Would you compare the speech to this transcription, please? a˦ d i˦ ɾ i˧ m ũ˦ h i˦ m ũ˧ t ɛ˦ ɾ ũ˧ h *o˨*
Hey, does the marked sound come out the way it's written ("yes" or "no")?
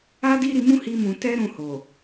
yes